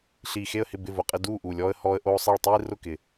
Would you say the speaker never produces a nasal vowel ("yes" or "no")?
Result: yes